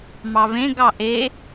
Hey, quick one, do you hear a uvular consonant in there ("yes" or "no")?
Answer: no